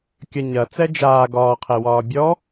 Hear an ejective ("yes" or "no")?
no